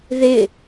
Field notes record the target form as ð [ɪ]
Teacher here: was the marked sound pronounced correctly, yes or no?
yes